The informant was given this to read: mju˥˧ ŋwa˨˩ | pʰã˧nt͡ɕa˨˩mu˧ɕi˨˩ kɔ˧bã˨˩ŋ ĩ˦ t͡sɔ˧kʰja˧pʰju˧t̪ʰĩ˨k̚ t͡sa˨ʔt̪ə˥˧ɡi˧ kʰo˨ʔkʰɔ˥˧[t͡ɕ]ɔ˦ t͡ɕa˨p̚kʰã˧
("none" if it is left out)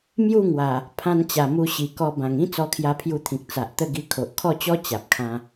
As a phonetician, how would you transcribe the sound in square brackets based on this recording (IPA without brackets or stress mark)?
t͡ɕ